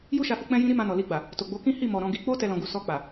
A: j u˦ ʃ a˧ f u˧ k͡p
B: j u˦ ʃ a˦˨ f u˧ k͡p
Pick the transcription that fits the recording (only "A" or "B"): A